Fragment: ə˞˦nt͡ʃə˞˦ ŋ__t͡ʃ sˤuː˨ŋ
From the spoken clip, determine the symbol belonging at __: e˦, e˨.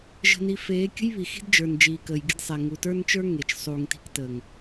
e˨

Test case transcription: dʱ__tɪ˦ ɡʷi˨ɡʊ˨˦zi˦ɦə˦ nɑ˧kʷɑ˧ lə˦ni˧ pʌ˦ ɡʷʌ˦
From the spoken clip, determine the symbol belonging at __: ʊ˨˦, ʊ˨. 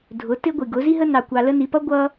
ʊ˨˦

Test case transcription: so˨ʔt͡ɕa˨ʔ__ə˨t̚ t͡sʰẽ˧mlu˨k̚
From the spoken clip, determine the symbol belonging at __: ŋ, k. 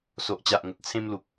ŋ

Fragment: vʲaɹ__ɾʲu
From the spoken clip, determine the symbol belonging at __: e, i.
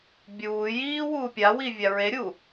e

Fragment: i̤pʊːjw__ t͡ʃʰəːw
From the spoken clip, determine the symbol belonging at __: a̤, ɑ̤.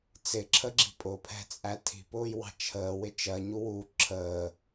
ɑ̤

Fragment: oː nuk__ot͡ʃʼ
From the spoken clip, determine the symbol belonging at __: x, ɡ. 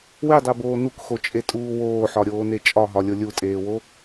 x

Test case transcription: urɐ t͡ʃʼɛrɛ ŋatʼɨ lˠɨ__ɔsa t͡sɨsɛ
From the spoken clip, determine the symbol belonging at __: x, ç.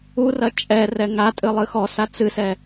x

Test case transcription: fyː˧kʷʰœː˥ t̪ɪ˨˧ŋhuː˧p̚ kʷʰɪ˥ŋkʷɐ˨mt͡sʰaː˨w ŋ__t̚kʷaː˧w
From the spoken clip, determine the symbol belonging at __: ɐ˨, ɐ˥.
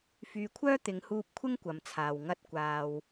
ɐ˥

